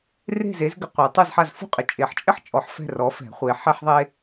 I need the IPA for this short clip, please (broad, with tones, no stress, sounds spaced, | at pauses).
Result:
r e̤˦˨ z e˨˥ z ɡ ɪ˨ qʷ ɛ˨˩˦ tˤ u˦˨ z ħ a˦˨ z f ṳ˥ qʼ ɪ˨ t͡ʃʼ e˨˩˦ ħ t͡ʃʼ ɪ˥ ħ t͡ʃʼ ɔ˨˥ ħ f ɛ̤˦˨ r ɔ˨˥ f ɛ̤˨˩˦ χʷ e˨˥ ħ ɛ˥ ħ ðˤ e˥